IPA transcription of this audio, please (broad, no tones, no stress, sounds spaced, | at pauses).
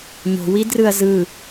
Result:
ɲ o̤ w i d r ɯ ɐ̯ z ɯ